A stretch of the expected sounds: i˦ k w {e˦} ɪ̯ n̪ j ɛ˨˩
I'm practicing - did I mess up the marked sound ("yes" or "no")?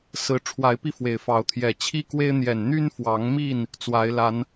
no